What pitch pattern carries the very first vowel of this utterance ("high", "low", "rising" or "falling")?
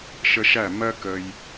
high